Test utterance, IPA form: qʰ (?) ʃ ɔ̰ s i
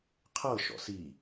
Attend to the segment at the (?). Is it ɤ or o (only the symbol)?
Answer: ɤ